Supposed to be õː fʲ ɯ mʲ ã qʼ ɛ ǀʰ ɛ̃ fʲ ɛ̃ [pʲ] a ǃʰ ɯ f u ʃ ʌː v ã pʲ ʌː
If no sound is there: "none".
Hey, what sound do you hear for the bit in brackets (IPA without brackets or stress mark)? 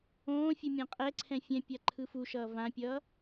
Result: pʲ